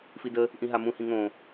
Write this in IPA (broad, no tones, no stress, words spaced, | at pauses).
fidə | ʔĩɦamũ hĩŋõ